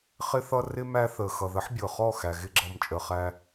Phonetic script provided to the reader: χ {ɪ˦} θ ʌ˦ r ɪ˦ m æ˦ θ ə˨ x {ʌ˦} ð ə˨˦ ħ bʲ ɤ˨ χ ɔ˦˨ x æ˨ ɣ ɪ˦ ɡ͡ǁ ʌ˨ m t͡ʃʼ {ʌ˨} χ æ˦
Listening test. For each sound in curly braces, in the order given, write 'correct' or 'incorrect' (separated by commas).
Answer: correct, incorrect, incorrect